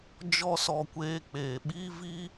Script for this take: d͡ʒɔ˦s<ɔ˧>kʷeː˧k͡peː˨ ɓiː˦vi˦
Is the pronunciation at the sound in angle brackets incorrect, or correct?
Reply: correct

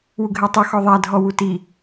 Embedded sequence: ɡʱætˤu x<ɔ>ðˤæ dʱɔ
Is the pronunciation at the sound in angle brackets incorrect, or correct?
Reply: correct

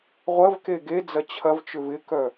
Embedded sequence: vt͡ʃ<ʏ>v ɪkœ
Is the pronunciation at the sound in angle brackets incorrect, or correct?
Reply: correct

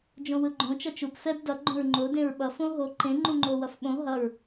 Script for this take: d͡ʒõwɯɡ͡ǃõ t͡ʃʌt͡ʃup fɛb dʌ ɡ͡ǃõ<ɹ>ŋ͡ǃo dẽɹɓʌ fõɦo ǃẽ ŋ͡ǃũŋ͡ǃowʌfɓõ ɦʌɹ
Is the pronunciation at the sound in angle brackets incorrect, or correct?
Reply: correct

